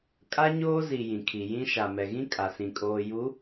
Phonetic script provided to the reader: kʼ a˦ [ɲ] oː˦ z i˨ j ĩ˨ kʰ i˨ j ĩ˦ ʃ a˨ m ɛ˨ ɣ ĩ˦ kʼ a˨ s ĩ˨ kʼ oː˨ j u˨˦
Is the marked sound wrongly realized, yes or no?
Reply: no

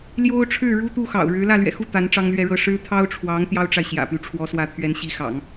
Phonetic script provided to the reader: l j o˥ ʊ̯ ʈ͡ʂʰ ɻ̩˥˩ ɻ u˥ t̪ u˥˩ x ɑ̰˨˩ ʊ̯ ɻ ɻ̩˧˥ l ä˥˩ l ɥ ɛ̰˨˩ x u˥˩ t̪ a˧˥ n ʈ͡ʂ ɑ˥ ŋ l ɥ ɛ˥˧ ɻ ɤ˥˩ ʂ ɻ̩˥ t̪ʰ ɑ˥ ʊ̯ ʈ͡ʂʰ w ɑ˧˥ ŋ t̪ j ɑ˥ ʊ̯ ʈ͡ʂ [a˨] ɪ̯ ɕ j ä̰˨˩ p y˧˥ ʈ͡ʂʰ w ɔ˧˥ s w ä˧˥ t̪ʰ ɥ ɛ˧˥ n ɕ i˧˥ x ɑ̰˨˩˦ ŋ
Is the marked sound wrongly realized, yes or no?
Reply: no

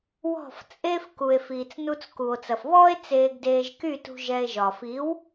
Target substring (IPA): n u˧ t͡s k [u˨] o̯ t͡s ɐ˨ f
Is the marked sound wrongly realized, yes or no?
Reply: no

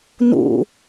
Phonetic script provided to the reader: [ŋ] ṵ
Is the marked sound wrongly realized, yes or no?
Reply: yes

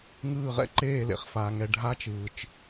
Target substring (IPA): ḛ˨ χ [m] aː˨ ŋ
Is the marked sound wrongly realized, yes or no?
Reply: yes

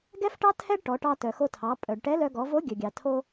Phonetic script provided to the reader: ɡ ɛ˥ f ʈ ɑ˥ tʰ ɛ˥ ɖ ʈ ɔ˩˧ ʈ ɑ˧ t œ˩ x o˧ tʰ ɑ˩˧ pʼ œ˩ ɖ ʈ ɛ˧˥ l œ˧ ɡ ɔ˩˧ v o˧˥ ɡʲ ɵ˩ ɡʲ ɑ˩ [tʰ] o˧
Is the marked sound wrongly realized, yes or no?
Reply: no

